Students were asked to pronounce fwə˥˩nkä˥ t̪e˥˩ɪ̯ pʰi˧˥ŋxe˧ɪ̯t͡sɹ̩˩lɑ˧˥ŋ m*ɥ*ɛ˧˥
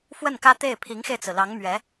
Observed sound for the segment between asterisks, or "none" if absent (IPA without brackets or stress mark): ɥ